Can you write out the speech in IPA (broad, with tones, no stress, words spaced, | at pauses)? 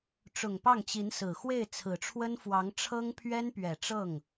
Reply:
ʈ͡ʂʊ˨˩ŋpɑ˥˩ŋt͡ɕi˧˥nsɹ̩˨˩ xwe˥˩ɪ̯t͡sʰɹ̩˨˩ʈ͡ʂʰwə˥nfwɑ˧˥ŋ ʈ͡ʂʰɤ˥ŋpʰɥɛ˥npɥɛ˨˩ ʈ͡ʂɤ˥˩ŋ